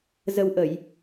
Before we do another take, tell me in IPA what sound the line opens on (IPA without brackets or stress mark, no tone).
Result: z